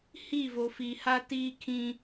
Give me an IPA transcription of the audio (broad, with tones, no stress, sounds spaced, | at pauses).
h i˦˨ v o˨ f i˨ h a˦ t iː˦ kʰ ĩ˦